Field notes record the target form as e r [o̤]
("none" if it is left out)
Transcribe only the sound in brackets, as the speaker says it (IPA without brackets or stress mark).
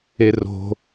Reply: o̤